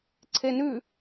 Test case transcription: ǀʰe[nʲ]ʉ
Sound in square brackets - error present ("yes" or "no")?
yes